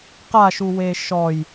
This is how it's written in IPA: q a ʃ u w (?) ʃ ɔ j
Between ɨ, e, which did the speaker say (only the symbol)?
e